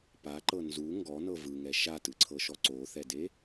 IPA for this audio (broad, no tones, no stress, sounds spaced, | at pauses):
p a ǃ ɤ n z u ŋ ɡ ɔ n ɤ v ɯ ŋ ɛ ʃ a t ɯ ǀʰ ɤ ʃ ɔ ǀ o θ ɛ d e